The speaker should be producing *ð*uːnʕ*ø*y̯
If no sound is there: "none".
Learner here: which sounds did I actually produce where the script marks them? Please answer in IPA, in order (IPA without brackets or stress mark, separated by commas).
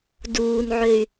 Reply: d, ø